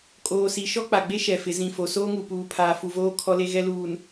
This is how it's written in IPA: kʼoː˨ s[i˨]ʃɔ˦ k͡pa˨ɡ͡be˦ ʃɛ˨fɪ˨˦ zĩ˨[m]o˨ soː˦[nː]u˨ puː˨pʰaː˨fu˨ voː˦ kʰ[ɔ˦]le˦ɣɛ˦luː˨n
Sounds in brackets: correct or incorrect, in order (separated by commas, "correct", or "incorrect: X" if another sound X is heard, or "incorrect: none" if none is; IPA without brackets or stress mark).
correct, incorrect: f, incorrect: ŋ, correct